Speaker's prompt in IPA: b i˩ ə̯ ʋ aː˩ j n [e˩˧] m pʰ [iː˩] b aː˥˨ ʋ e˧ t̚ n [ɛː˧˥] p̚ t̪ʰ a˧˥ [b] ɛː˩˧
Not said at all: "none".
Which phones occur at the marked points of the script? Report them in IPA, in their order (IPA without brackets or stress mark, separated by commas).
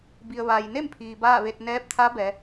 e˥˨, iː˩, ɛː˧˥, b